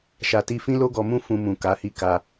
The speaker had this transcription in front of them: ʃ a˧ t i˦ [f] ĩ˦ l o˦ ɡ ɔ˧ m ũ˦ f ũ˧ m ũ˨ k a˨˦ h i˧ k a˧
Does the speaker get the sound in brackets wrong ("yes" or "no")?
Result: no